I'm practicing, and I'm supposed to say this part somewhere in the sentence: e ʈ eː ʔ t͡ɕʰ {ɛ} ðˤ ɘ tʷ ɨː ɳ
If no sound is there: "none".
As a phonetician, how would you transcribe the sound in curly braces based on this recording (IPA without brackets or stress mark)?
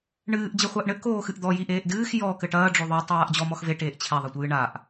ɛ